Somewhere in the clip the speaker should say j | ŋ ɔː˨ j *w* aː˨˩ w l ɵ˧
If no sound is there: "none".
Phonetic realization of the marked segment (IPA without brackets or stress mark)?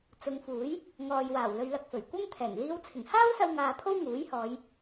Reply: w